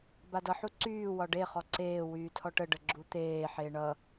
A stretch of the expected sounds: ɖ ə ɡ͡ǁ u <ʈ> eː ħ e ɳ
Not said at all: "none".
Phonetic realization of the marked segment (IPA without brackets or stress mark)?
t̪